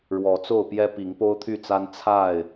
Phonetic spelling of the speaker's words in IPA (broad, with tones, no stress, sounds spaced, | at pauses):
ɻ w ɔ˨˦ t͡s o˥˨ ʊ̯ p j ɛ˦ p i˨˦ ŋ p o˦ ʊ̯ t̪ʰ y˥˨ t͡s a˦ n t͡sʰ a˥˨ ɪ̯